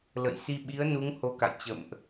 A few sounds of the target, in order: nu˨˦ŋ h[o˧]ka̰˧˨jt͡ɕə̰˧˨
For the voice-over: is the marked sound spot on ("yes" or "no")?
yes